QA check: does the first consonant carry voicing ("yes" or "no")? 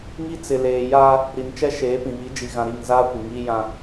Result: yes